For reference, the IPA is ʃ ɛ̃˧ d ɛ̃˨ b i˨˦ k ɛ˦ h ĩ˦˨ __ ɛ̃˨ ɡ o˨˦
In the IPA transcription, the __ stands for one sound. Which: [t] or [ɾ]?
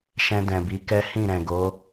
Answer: ɾ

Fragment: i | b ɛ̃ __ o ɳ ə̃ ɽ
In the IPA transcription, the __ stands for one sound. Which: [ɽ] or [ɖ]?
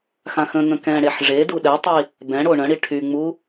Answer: ɽ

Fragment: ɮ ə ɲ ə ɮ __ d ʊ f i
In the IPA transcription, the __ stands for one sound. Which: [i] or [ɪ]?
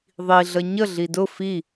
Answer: i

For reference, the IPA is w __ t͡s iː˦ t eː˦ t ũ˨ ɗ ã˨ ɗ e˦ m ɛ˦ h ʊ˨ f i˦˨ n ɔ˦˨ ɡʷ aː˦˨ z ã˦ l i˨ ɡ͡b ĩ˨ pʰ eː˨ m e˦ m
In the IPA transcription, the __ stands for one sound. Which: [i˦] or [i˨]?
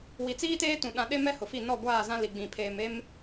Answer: i˨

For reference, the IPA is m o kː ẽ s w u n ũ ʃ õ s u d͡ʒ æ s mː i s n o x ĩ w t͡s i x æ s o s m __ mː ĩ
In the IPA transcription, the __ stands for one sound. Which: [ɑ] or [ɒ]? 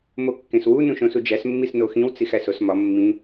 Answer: ɒ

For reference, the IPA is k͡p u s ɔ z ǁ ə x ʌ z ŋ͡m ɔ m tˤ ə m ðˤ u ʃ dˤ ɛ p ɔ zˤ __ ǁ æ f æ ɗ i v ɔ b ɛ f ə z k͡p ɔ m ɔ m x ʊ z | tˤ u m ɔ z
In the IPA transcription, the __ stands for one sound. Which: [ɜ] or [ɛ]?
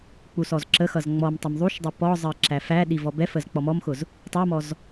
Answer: ɜ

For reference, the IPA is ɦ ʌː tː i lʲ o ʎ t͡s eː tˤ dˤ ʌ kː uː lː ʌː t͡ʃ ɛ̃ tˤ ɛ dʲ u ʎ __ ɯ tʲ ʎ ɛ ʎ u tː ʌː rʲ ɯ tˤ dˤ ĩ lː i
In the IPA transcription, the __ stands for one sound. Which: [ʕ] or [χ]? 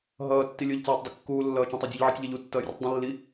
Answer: ʕ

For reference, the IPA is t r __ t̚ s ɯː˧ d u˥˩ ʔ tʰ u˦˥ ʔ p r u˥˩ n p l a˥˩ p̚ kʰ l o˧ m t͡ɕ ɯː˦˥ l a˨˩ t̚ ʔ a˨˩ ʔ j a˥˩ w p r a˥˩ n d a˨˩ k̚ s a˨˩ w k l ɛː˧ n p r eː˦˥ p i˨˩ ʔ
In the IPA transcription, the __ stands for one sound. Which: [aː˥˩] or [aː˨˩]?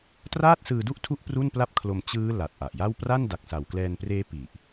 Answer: aː˥˩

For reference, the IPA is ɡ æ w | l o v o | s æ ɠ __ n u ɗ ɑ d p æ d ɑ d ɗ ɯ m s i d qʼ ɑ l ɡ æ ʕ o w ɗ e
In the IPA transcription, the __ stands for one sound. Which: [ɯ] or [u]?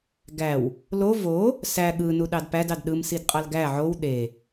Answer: ɯ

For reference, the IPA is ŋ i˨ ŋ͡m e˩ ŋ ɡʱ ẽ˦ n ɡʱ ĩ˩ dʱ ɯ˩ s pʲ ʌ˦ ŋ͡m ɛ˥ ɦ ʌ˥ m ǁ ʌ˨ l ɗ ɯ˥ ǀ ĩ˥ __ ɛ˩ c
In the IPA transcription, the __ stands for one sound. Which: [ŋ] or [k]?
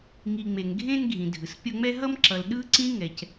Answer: ŋ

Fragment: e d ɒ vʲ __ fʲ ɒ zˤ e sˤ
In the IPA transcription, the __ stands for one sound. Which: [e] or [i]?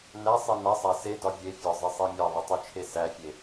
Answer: e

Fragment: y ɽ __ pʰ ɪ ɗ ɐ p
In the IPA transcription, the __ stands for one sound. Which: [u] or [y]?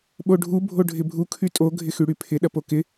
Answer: y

